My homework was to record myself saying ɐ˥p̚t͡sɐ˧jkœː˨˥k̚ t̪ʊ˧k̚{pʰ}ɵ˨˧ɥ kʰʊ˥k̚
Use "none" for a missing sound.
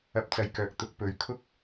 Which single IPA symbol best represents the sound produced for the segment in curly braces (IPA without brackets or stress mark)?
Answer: p